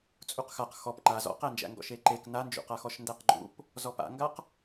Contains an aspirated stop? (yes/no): no